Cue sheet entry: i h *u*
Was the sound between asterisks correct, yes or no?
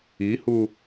yes